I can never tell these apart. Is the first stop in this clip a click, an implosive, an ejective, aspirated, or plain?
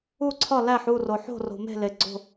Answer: click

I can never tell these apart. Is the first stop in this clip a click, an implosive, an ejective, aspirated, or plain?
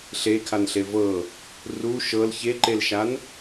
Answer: aspirated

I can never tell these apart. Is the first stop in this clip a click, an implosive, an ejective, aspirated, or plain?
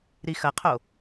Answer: aspirated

